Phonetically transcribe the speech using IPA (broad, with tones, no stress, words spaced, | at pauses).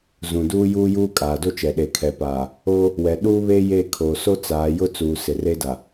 zũ˨duː˦juː˦juː˦ kʼaː˨do˦t͡ʃɛ˨ ɗe˨kʰɛ˨paː˨ | o˦ | wɛ˨ ɗuː˦βe˦ je˦˨kʰo˨ so˦ t͡saː˨˦ jʊ˦t͡suː˨ sɪ˨re˦da˨